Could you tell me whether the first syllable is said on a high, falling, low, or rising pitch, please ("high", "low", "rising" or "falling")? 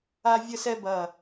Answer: high